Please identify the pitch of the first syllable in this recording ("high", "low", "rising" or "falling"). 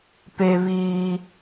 high